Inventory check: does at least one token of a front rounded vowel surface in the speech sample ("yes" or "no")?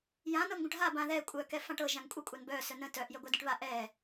yes